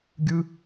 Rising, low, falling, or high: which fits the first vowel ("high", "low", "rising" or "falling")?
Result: high